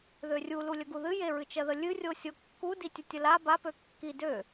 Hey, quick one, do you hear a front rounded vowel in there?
yes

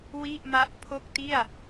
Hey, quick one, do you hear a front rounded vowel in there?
no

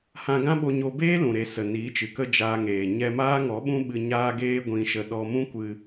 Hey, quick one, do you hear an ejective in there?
no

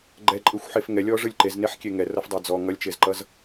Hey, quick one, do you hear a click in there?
yes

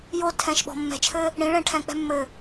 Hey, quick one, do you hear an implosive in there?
yes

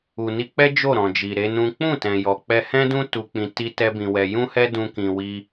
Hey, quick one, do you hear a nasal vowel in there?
yes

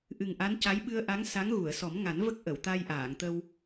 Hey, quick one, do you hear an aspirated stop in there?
no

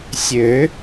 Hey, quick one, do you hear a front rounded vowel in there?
yes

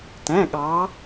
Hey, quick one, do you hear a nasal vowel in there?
yes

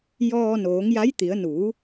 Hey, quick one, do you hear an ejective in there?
no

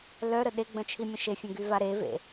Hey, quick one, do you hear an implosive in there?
yes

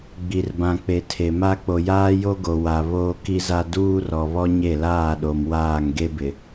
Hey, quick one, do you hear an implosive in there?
yes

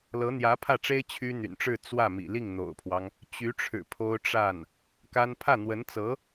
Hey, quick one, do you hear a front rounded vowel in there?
yes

